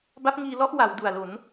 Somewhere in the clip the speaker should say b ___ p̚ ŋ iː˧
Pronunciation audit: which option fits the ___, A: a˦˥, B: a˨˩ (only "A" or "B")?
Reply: A